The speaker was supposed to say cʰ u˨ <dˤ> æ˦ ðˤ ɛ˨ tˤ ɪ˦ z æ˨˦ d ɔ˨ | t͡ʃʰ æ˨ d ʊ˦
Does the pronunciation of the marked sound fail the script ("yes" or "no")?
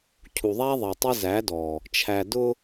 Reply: yes